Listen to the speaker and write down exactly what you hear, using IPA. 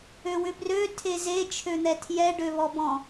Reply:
øwʏbrø tʰeze t͡ʃʰøn̪ɛtʰjɛ ɖøβɔbɔ̃

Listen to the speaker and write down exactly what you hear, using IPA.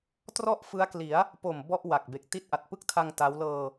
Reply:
trɔ˥˩ʔfɯ˦˥a̯kli˩˦a̯ | po˨˩m bɔ˥˩ʔwa˨˩k̚be˨˩k̚ ti˦˥t̚ʔa˨˩t̚pɯ˥˩k̚tʰa˧ŋ ta˦˥w lɤː˧

